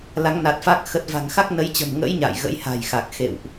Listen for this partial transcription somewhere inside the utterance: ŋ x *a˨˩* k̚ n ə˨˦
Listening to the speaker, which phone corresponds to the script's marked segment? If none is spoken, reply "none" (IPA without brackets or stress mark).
a˦˥